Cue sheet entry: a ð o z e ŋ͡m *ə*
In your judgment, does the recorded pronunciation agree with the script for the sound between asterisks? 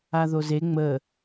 yes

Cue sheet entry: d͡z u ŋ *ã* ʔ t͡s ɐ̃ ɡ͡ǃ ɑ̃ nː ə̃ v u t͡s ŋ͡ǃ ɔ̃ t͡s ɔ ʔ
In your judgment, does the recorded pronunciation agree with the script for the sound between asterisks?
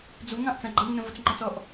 no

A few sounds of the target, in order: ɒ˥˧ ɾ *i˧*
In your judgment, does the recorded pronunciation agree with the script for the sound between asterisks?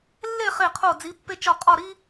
no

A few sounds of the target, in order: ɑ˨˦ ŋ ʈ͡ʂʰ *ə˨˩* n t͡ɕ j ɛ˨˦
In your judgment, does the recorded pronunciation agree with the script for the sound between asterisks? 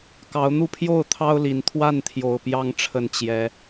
yes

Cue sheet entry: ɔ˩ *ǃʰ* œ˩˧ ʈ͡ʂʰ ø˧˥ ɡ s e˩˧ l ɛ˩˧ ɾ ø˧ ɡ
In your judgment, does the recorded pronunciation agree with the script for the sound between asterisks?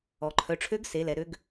yes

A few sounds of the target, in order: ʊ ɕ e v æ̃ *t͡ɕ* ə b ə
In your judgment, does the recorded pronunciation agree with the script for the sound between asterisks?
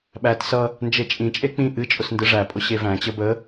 yes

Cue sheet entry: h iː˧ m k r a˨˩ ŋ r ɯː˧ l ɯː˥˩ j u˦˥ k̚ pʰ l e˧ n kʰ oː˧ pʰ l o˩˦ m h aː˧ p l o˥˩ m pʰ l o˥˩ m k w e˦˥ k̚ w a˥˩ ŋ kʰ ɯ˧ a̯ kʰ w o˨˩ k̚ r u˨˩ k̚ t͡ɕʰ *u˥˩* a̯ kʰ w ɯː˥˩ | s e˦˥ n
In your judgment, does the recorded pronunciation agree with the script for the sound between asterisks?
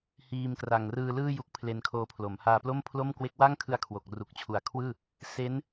no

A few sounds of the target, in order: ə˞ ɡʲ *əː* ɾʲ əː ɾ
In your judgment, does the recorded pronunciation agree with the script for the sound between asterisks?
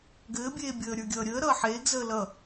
no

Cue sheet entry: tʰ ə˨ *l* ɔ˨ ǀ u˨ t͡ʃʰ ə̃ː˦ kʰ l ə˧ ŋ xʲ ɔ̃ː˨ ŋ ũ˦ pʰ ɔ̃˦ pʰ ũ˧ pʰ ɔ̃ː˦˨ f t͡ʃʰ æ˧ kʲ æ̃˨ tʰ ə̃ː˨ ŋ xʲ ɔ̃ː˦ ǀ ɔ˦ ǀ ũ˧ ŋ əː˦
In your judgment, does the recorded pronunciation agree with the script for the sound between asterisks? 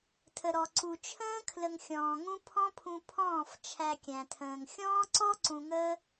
no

